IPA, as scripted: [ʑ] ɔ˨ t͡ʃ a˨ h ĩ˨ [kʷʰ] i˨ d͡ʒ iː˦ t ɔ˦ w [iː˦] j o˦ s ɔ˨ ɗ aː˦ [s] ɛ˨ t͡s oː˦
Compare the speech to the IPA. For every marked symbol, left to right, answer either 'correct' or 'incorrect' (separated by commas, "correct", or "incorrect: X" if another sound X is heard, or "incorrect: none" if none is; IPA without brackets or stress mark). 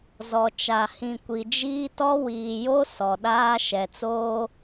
incorrect: z, incorrect: kʷ, incorrect: iː˨, incorrect: ʃ